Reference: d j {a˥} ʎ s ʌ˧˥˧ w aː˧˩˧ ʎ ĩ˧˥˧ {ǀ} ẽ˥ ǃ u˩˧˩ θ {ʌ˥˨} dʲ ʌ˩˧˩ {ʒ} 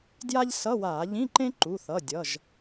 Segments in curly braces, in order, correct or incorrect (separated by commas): correct, incorrect, incorrect, correct